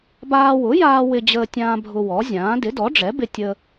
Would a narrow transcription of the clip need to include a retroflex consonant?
yes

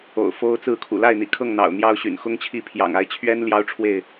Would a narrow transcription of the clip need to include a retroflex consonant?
yes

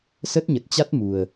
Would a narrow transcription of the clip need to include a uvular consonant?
no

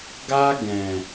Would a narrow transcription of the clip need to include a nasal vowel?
yes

